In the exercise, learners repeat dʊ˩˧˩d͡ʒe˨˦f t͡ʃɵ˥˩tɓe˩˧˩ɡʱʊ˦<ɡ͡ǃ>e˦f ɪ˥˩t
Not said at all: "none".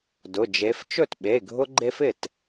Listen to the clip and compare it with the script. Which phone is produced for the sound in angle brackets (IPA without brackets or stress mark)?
ɡ͡ǃ